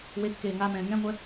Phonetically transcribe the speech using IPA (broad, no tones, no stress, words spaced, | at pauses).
wekːeː ŋamɛ̃ː ŋɛ̃ŋʷɛ